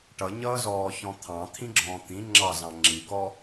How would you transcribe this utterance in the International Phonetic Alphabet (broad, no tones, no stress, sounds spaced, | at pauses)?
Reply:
ʈ ʌ ɲ ʌː z ɔː ç ɔ̃ t̪ʰ ɑ̃ t̪ʰ ĩ ɡ͡ǁ ɔ̃ː t̪ ĩ ŋ͡ǁ ɑ z ɑ̃ ŋ͡ǁ i k ɔ